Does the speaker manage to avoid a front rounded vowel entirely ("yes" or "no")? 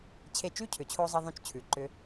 no